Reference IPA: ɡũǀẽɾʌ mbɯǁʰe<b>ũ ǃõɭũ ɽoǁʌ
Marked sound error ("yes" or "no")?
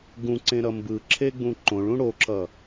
yes